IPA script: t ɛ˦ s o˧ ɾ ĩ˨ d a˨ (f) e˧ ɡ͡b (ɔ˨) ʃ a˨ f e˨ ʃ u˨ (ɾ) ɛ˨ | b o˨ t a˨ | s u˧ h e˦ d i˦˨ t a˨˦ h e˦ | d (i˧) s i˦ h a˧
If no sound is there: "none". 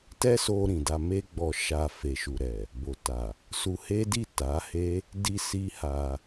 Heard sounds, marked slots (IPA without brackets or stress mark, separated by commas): m, ɔ˨, ɾ, i˧